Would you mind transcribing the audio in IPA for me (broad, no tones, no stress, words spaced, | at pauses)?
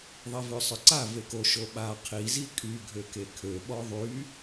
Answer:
ðˤevøsˤœǀa veko ʃoɓa qʰi zikʼy ɡʱøkekʰø ɓɔðˤy